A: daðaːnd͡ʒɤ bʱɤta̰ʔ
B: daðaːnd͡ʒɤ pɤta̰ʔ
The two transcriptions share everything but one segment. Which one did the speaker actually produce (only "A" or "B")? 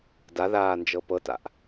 B